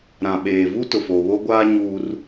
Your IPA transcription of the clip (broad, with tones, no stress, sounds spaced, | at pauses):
ɾ ã˨ ɓ eː˨ v u˦ t ʊ˨ f o˨ β o˦ ɡʷ aː˦ ɲ uː˦ r